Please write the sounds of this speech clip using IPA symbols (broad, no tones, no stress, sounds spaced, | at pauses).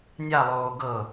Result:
nʲ a lˠ oː ɡ ɤ